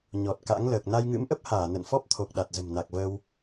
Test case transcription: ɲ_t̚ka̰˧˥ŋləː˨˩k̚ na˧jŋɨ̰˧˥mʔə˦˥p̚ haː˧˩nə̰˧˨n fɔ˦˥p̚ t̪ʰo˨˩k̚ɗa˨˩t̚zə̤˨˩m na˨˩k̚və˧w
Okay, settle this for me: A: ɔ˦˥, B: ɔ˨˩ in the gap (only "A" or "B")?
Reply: B